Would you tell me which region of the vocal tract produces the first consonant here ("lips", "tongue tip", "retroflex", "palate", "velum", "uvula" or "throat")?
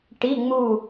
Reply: retroflex